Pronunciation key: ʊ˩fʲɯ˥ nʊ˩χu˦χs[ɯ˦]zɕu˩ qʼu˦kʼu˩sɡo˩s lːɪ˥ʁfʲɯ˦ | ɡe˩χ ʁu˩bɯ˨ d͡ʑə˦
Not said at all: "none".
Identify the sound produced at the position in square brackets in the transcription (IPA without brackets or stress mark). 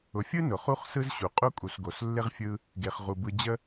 ɯ˦